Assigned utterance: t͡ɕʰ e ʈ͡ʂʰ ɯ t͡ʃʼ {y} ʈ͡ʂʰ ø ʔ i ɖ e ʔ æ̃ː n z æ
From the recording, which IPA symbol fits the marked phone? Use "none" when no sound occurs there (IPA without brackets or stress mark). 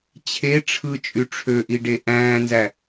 y